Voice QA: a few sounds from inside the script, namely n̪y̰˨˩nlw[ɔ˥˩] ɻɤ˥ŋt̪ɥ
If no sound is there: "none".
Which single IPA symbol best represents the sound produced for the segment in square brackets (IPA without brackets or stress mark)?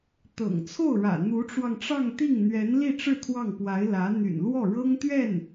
ɔ˥˩